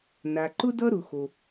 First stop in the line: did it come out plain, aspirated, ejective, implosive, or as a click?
click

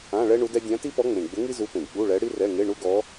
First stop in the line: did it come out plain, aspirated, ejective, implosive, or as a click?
plain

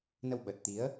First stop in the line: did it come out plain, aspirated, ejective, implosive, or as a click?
implosive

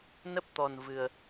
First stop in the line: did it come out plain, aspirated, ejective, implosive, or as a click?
plain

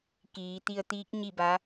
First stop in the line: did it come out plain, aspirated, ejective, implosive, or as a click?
plain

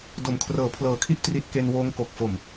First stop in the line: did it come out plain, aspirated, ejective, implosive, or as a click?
plain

